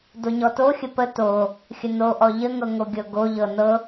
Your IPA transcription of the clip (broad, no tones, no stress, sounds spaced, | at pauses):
d o ɲ ɔ t o xʲ ə p ə t o | xʲ ə n o ʔ ɔ ʎ ə ŋ ɤ ŋ o ɡʲ ɤ ɡ o ʎ ɤ n ɤ